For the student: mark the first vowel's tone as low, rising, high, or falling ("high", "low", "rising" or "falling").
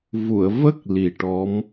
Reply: low